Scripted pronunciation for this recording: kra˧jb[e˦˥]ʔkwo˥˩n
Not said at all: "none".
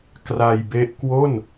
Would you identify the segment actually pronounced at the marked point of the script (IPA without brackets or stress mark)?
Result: e˦˥